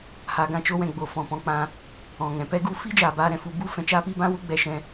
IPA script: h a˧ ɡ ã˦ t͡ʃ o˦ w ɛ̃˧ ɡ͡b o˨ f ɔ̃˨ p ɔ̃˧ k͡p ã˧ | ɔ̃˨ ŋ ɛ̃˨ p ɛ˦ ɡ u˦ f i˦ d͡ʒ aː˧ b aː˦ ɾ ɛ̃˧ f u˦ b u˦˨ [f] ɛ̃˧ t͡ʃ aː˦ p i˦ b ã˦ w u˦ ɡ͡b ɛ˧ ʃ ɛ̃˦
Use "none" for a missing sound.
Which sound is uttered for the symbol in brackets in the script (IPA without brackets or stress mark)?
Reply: f